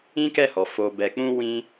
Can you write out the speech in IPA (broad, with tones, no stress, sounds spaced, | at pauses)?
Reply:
ĩ˦ k ɛ˦˨ h ɔ˨ f o˨ b ɛ˨ k͡p ũ˧ w ĩ˧